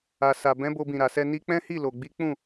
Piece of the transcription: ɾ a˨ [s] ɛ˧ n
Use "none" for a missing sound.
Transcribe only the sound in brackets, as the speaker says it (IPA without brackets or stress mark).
s